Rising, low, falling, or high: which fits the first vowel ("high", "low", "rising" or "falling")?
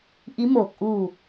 rising